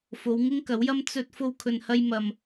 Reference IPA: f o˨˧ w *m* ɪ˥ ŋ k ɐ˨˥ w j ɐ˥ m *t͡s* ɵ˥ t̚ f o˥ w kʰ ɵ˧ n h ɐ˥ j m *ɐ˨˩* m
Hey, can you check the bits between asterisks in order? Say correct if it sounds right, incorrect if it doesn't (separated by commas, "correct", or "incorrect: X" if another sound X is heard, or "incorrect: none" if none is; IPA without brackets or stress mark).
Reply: incorrect: ŋ, correct, incorrect: ɐ˧